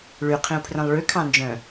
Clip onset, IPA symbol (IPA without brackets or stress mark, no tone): ɭ